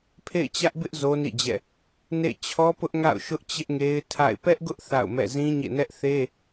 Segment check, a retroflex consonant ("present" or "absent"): absent